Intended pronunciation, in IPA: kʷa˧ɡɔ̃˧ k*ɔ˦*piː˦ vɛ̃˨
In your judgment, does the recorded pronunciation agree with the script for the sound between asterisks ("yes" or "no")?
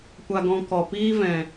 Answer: no